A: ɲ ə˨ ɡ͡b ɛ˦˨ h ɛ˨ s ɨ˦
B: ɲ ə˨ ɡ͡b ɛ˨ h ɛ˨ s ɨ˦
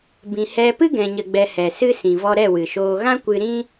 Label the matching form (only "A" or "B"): B